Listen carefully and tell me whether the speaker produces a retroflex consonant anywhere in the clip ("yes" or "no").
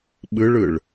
yes